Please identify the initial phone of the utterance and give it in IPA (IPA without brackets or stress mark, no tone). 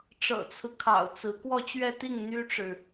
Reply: ʈ͡ʂ